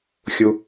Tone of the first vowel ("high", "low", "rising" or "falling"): low